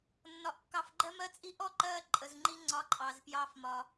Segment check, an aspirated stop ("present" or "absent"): absent